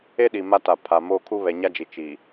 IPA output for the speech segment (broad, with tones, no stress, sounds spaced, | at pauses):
e˦ ɗ i˨ m a˦ t a˨ pʰ a˨ m o˦ kʰ u˦ β ɛ˨ ɲ a˦ d͡ʒ i˨ t͡ʃ i˨